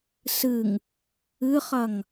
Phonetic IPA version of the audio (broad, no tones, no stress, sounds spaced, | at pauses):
s ɨ ŋ | ɨ χ ɐ ŋ